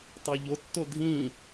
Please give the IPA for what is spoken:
tˤ o ʎ o tː o dʱ ĩ

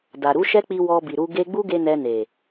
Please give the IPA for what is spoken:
d a˨ ɾ u˨˦ ʃ ɛ˦ k͡p i˧ w ɔ˧ b i˨ ɾ u˧ ɡ e˧ ɡ͡b u˦ ɡ e˧ n ɛ˧ n e˨

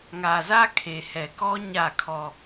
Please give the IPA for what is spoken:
ŋ a˨ z a˦ kʰ e˨ h ɛ˨ k ɔ˦ ɲ a˦˨ kʰ ɔ˦

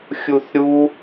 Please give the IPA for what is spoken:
xʲ u θ ɾʲ u

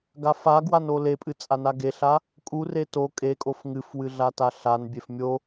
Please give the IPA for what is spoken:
ɡ a f a ɡ w a n o l e pʼ ɨ t͡sʼ a n a ɡ e ɬ a | kʼ u r e t o kʼ e kʼ o f ŋ ɨ f w ɨ ɮ a t a ɬ a n bʲ e f mʲ o

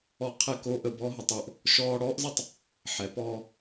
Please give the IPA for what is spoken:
ɔ˧ qʰ ɛ˧ k o˧ ʔ ə˧ b ɔ˦ ɦ ə˨˦ tˤ o˧ ʔ | ʃ ɔː˦ ɽ ɔː˦ ʔ z ə˦ tˤ | ħ ɛ˨˦ p ɔː˧

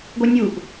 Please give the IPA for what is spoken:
ɡʷ œ nʲ u ʔ

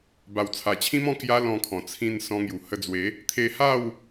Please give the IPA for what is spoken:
b a˨˩ w t͡sʰ a˨˩ t͡ɕʰ ĩ˦ m ɔ̃˥˧ k j a˦ l ɔ̃˧ kʰ ɔ̃˨˩ t͡sʰ ĩ˧ n s ɔ̃˧ ŋ j u˨˩ h ə˧ d͡z w e˨˦ | t̪ʰ e˧ h a˥˧ w

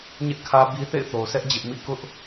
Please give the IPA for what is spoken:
ɲ ɛ˦ ʔ kʰ ä˦ b i˦ θ ḛ˦˨ ɪ̯ θ o˨ ʊ̯ sʰ ɛ˦ ʔ d͡ʑ ɪ˦ ʔ m ḭ˦˨ k ʊ˦ ʔ

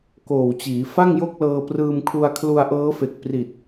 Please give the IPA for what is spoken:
k oː˨˩ w t͡ɕ iː˩˦ f a˥˩ ŋ j o˥˩ k̚ l ɤː˧ p r ɯː˧ m kʰ u˧ a̯ kʰ l u˧ a̯ ʔ ɤː˦˥ f e˨˩ k̚ p r i˨˩ t̚

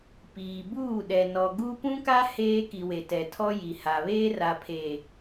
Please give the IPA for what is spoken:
p iː˨ b uː˦˨ ɗ ɛ˨ n ɔ˨ ɡ u˦ p ũ˦ k a˦ h eː˦ k i˨ w e˨ t ɛ˨ tʰ ɔ˦ j i˨ h a˨ β eː˦ r a˨ pʰ eː˨

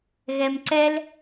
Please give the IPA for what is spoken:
ɣ ɛ m ǀ ɛ l

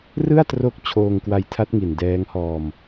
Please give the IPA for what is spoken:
r ɯ˥˩ a̯ t r o˦˥ k̚ t͡ɕʰ oː˧ ŋ k w a˧ j tʰ a˦˥ t̚ ŋ i˨˩ n d ɛː˦˥ ŋ h ɔː˧ m

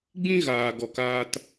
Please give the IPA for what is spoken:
ɡ͡b ĩ˦ ɣ aː˧ ɡ ɔ˧ k aː˦ t

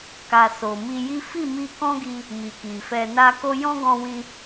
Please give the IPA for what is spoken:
k a˧ s o˨ m i˧ j i˦ f i˦˨ m i˧ k ɔ̃˦ ɡ i˧ | m i˨ k i˨ f ɛ˧ n a˦ k o˦ j ɔ̃˦ ɡ ɔ̃˧ w ĩ˧

